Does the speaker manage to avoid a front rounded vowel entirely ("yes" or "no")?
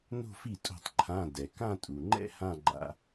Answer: yes